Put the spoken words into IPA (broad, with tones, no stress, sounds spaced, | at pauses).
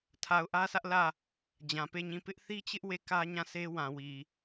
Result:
tʰ a˨ ʊ̯ ʔ ä˦ s ä˦ ʔ l ä˦˨ | d͡ʑ ã˨ p e˦˨ ɲ ĩ˦˨ p ɪ˦ ʔ θ i˦ t͡ɕ ɪ˦ ʔ w e˦˨ k ä˦ ɲ ã˦˨ s e˦ w ã˨ w i˨